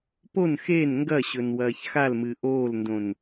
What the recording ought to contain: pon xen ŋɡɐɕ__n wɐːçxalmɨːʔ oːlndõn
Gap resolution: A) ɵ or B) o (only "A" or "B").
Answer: A